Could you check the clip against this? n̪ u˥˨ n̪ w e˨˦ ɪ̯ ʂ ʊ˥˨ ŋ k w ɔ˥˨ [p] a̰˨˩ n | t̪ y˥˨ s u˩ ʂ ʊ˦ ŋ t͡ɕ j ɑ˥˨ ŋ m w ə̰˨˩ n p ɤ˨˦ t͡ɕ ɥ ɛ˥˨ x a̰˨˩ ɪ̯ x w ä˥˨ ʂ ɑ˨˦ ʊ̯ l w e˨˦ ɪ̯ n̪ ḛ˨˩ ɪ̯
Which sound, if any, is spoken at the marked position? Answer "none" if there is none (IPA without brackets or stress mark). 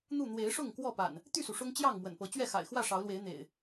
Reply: p